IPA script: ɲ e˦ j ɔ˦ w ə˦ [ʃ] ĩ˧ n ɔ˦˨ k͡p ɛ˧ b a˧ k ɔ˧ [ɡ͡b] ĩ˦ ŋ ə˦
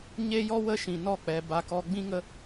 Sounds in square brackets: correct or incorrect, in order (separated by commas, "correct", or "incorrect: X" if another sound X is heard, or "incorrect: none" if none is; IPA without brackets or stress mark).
correct, correct